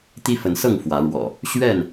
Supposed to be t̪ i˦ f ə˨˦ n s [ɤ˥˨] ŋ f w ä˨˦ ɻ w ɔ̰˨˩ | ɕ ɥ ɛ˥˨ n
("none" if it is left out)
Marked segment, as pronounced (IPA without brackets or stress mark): ɤ˥˨